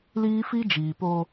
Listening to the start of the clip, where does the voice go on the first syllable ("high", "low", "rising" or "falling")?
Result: high